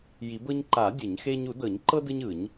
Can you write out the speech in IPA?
j i˨˩˦ b ɤ˦ ɲ ǃ a˨˩˦ dʲ ɯ˨˩˦ ɲ x e˦ ɲ u˨˩˦ d ɤ˨˩˦ ɲ ǃ ɤ˦ d ɯ˦ ɲ ɯ˨˩˦ ɲ

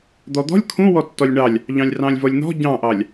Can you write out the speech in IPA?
d̪ ɔ d̪ ɔ̤ lʲ kʰ ũ w ɔ tː ɔ lʲ ɳ ɑ lʲ | ʎ ɑ̃ lʲ r ɑ̃ lʲ v ɔ lʲ n̪ ɔ̤ ɟ ɑ̃ ʔ ɑ lʲ

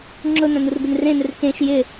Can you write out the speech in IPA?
ŋ͡ǁ ʊ n ã n u r b ɪ n r ẽ n ɪ r k ẽ ʃ j ɪ

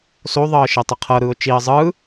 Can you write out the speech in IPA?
s o ðˤ ɤː ʃ e tˤ i qʰ ɤ ɾ ɯː ʊ̯ t͡ʃ i ə̯ zˤ ɯ

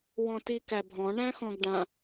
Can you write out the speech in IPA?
w ɔ̃ t i k æ bʱ ɔ̃ ɳ æ̃ x ɔ̃ ɡ ɖ ã

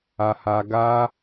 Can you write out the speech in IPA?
a˧ h a˧ ɡ a˦

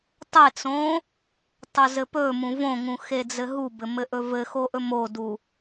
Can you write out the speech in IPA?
tˤ e t͡s õ | tˤ ɵ z ɘ p ɵ m ũ v õ ŋ ũ x e d͡z ɘ ɦ u b ɘ m ɘ ʔ ɵ v ɘ x o ʔ ɵ m o d u

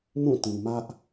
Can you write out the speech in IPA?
m ũ˦˨ t ĩ˨ m ä˦ ʔ

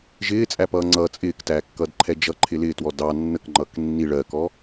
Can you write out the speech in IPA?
ʒ ɪː t͡sʼ æ p ʌː ŋ͡ǀ ʌ t͡sʼ ɪː k t æː kː ʌ d ǃʰ ɛ d͡ʒ ʌ ǃʰ ɪ l ɪː t w ɔ d ɑ nː ə k ŋ͡ǃ ʌː k nː i ɭ ɜ k ɔ

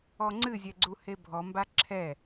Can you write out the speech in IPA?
ɔ ŋ͡ǀ ɨ zʲ ɛ ɡ͡ǀ u h e bʱ ɔ m b a ǁʰ ɛ

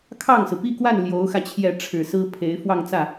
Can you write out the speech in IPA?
kʰ ɑ˥˩ ŋ s ɹ̩˩ p i˥˧ k w a˥˩ n l j o˧˥ ʊ̯ x ä˧ t͡ɕʰ j ɛ˥˩ ʈ͡ʂʰ ɻ̩˨˩ s ɹ̩˥ pʰ e˧˥ ɪ̯ f w ɑ˥˧ ŋ t͡s ä˥˩

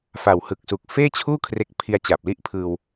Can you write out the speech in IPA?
f a˨˩ w h ɯ˨˩ k̚ s u˨˩ k̚ f eː˥˩ t͡ɕʰ uː˥˩ kʰ r e˦˥ k̚ pʰ i˧ a̯ t͡ɕ a˨˩ p̚ l i˥˩ ʔ pʰ ɯː˧ w

